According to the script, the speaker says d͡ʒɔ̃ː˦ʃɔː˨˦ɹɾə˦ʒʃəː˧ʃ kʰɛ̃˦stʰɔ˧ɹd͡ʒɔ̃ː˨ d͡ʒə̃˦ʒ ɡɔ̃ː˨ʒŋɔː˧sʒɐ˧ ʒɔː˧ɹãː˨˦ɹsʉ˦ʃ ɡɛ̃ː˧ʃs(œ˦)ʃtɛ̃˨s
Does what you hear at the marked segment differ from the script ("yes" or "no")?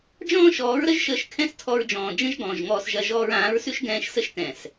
yes